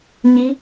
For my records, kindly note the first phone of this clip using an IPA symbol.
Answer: ɲ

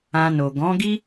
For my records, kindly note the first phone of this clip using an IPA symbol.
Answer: ã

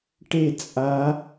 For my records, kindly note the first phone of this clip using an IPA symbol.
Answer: ʈ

